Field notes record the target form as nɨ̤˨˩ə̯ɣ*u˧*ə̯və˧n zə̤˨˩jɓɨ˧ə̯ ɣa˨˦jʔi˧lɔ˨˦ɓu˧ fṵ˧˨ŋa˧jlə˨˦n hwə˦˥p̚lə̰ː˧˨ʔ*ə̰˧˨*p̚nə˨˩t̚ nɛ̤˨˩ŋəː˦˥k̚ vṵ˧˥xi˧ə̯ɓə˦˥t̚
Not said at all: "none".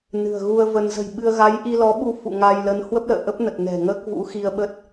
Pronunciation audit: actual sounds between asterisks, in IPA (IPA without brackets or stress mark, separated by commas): u˧, ə˦˥